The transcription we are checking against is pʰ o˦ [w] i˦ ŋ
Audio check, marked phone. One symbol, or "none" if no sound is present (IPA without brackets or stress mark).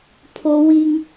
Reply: w